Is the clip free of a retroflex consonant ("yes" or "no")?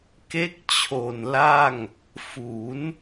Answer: yes